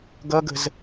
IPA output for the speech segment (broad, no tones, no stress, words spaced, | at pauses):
ɡʌɡə̤z